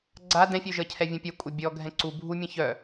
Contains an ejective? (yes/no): yes